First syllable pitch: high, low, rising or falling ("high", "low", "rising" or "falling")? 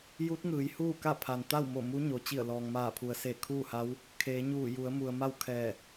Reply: rising